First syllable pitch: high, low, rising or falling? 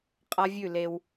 high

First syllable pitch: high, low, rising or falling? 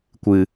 low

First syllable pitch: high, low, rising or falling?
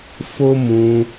high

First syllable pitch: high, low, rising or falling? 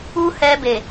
high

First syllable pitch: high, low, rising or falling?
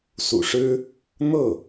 low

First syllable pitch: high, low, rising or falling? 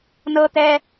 high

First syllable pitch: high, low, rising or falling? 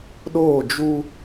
falling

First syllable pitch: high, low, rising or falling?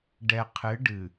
low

